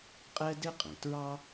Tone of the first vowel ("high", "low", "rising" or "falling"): high